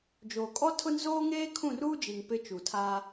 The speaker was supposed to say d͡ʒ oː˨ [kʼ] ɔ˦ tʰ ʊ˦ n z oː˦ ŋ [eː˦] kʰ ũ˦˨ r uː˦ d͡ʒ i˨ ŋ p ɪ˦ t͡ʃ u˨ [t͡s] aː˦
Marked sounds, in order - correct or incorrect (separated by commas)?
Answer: correct, correct, incorrect